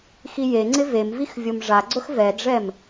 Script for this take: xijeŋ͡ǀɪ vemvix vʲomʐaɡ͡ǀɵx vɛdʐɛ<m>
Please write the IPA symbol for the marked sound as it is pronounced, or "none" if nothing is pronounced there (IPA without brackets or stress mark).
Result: m